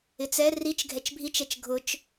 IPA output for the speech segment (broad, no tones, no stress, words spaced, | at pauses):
ɪt͡sɛ rit͡ʃ ɡʱɛt͡ʃbʱit͡ʃɛt͡ʃ ɡʱʊt͡ʃ